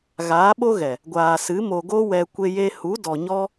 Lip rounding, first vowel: unrounded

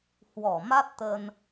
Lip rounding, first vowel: rounded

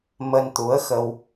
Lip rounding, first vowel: unrounded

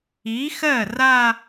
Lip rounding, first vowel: unrounded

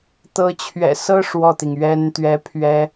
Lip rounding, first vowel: unrounded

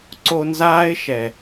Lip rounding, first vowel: rounded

